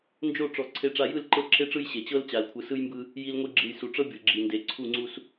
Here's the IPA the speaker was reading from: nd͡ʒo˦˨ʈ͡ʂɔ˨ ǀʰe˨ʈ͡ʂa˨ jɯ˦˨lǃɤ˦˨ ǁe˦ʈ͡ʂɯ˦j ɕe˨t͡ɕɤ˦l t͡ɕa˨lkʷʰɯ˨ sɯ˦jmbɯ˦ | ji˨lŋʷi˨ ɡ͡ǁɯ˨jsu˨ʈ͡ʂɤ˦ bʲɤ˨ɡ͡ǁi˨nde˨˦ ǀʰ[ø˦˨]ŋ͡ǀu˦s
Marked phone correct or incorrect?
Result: incorrect: u˦˨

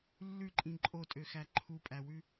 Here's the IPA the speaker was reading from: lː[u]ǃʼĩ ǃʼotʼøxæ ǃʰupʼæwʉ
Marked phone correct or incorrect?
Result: incorrect: ʉ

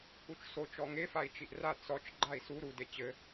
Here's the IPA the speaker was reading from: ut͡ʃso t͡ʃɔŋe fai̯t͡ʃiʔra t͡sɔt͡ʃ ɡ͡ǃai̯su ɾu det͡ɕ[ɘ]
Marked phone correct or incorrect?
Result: correct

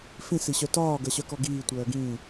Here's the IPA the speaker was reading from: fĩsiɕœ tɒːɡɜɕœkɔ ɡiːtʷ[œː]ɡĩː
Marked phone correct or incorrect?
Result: correct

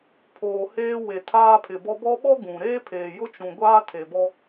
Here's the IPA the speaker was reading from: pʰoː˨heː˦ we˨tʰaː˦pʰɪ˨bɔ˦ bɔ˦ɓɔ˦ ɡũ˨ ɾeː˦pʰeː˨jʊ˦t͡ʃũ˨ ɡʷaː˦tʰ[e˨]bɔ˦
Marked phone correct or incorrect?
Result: correct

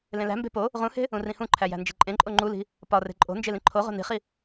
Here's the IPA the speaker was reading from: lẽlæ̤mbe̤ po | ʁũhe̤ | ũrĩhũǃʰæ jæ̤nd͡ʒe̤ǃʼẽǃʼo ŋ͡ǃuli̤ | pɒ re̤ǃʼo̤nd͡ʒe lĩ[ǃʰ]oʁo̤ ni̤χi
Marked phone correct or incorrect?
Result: correct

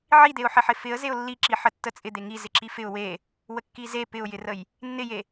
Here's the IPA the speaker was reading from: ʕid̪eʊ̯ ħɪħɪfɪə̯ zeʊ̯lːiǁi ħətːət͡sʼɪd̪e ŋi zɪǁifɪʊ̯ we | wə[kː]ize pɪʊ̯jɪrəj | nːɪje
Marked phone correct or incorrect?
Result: correct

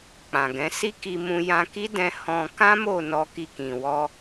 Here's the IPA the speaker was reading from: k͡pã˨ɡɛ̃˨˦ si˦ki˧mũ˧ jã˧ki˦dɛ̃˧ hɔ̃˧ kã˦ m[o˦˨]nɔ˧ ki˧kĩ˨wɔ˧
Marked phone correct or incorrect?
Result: correct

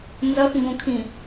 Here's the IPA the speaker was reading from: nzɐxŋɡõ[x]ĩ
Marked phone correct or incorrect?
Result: incorrect: kʰ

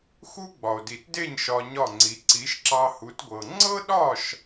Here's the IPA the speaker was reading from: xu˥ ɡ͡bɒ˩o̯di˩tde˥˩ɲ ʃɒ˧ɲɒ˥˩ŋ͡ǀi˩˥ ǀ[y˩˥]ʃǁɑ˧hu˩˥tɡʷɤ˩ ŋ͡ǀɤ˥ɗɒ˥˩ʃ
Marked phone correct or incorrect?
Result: incorrect: i˩˥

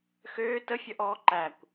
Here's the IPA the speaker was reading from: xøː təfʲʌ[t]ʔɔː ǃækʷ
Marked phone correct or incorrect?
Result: incorrect: none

